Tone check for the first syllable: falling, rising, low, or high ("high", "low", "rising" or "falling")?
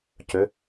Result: rising